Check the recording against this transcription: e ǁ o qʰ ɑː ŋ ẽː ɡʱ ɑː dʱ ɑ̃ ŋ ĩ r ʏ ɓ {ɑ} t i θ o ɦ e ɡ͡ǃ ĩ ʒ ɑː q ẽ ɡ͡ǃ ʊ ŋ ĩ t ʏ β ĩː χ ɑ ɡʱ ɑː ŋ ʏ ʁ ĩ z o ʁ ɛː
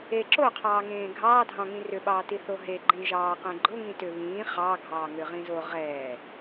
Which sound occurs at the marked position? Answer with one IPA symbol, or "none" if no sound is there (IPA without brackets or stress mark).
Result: ɑː